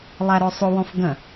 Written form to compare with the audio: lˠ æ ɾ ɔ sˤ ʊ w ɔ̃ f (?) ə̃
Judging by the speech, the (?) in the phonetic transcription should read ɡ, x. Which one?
ɡ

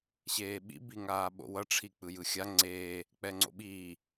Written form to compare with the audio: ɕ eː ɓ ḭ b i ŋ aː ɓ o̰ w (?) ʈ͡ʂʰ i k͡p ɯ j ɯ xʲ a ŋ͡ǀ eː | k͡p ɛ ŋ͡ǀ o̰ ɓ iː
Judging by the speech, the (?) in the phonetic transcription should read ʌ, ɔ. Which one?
ʌ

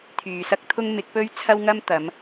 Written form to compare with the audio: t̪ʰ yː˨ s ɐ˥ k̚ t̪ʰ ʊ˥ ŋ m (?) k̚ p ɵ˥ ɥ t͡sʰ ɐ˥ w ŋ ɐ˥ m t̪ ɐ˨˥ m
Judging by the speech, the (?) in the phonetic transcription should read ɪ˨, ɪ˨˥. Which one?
ɪ˨˥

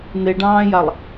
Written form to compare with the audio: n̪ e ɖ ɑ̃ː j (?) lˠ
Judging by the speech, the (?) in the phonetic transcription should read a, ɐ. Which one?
a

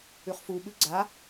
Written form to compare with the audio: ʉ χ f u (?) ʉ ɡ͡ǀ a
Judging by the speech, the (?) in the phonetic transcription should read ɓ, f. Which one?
ɓ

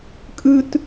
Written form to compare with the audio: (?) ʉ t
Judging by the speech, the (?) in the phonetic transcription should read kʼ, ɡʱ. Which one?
kʼ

